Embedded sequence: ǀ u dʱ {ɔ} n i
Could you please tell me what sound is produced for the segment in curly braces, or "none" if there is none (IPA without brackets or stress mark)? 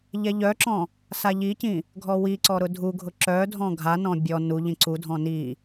ɔ̃